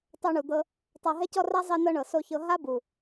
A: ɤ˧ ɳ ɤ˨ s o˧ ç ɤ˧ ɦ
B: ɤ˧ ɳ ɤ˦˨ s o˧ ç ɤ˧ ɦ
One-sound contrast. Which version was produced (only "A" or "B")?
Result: A